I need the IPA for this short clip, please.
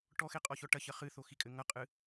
ʈ ɔ x e qʼ ɔ ç ɔ ʈ ɐ ç ɐ χ ɨ θ o x i kʼ ɘ ŋ ɐ qʼ ɨ

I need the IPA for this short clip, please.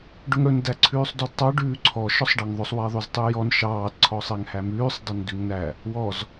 ɖ ɵ ŋ ɽ ɵ n d æ ǀʰ ʉː sˤ d ɔ d tˤ ɑ ɖ ʉː ǀʰ ɔ ʃ ɔ sˤ ɖ ɑ ŋ ðˤ ɵ sˤ w ɛ ðˤ ʉ z tˤ ʉ j ɔ n ʃ ɑː d ǀʰ ɔ sˤ ɛ ŋ h æ m ʉː sˤ dˤ ɵ n d ʉ ŋ n æ | w ɔ z

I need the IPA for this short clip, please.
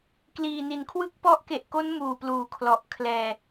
k l iː˨˩ n i˩˦ n kʰ w ɯ˥˩ k̚ p ɔ˦˥ ʔ k e˨˩ ʔ k o˦˥ n m uː˨˩ p l uː˩˦ kʰ l ɔ˨˩ ʔ kʰ l ɛː˧

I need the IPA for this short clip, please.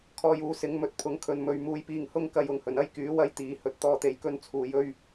kʰ ɔː˧ j uː˨˥ s ɪ˨˥ ŋ m ɵ˨ t̚ pʰ ʊ˨˥ ŋ kʰ ɵ˨˧ n m ɵ˧ ɥ m uː˧ j p iː˧ ŋ h ʊ˥ ŋ k ɐ˧ j ʊ˨ ŋ h ɵ˨˩ n ɐ˥ j k yː˨˥ w ɐ˥ j t̪ iː˨˧ h ɵ˨˥ t̚ t̪ ɔː˧ t̪ e˨ j k ɵ˧ n t͡sʰ uː˨ j ɵ˧ ɥ

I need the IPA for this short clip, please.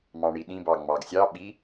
m ɑ̃ ɳ i ɗ ĩ b ɑ ŋ͡m ɑ ɡ sʲ ɑ ɓ i

